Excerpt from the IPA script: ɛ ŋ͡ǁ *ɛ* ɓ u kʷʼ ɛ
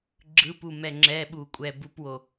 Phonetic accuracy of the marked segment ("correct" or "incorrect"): correct